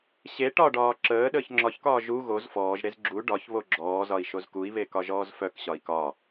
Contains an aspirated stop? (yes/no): no